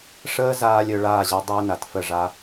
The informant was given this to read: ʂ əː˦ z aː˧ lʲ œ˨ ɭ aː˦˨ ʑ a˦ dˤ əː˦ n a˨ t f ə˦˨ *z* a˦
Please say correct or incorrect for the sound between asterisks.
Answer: incorrect